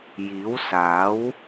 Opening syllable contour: rising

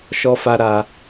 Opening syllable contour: high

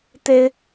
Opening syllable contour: high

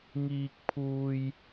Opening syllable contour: high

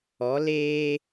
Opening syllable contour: rising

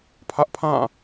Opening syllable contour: high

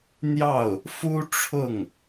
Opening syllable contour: falling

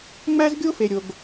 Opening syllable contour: high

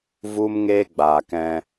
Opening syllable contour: high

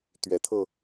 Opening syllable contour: rising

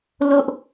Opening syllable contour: high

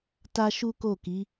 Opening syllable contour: high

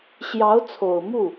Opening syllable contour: rising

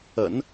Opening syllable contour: low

